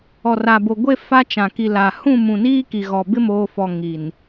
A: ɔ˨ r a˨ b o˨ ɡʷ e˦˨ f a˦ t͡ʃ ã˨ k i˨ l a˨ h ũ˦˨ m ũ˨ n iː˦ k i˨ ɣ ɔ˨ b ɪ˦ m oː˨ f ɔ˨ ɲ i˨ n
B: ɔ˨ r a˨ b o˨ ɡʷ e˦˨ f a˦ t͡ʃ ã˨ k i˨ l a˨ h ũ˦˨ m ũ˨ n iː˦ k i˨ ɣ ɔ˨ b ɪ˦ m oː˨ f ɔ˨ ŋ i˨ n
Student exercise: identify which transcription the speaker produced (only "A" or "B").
B